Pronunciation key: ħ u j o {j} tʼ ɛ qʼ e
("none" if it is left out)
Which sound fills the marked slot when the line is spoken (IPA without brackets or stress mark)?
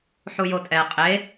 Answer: none